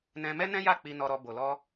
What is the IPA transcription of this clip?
n ɛ̃˧ m ɛ˦ n ɛ̃˦ j a˦˨ k͡p i˧ n ɔ˧ ɾ ɔ˧ b o˨ l ɔ˧

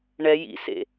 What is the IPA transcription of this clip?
ɳ ɛ j ḭ s ḛ

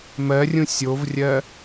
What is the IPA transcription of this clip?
m ɜ rʲ ũ sʲ o v rʲ ɜ

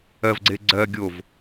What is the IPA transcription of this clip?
ɜ v ɡ͡ǀ e ɡ͡ǀ ɜ ɡʲ o v

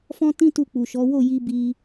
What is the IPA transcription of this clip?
f ɔ̃˦ t ĩ˦ t u˦˨ k͡p u˨ ʃ ɔ˨˦ w o˦˨ j i˧ b i˧

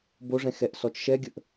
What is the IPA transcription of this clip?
b o ʐ ɛ̃ x ɛ ʔ s ɔ t͡ʃ ʃ ɛ ɡʲ ə ʔ

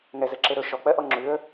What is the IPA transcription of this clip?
ŋ ɛ z ɛ ǁ e ɾ ɵ ʃ ɔ k͡p ɜ ʔ ɔ ŋ͡ǁ ʉ ə̯

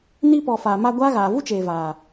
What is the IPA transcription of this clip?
n i˧ p ɔ˨ f aː˨ m a˧ ɡʷ aː˦ ɣ aː˨ v u˦ t͡ʃ eː˨ v aː˨

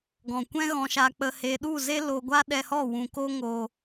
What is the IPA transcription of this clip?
ɡ ɔ̃˨ kʷ ɛ̃˦ ɣ ɔ̃˧ ʃ a˧ k͡p ə˧ h e˧ ɗ u˦˨ z e˦ l o˧ ɡʷ a˦ ɗ ɛ˧ h ɔ˦˨ w ũ˨ k o˦ ŋ o˧

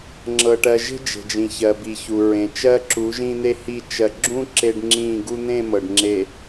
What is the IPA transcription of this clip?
ŋ͡ǁ ɤ˨ ʈ ɜ˨ ʒ e̤˦ d͡ʒ e̤˨ d͡ʒ ĩ˨ ç ɜ˨ b i˨ ç u˨ ɹ ẽ˨ t͡ʃ ɜ˦ ǁ u˨˦ ʒ ĩ˦ n̪ e˦ h i˦˨ t͡ʃ ɜ˨ ɡ͡ǁ ũ˦ ǁ e˦ ɖ ŋ͡ǁ ĩ˦˨ ɡ u˦ n̪ ẽ˦˨ m ɤ˨ ɖ ŋ͡ǁ e˨

